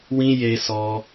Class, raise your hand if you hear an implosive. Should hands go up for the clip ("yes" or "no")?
no